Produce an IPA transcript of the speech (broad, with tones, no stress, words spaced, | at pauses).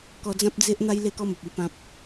kɔ˧d͡zã˦p̚d͡ze˦ʔn̪a˦j le˥˧kɔ˦mə˨p̚i˥˧ pã˦p̚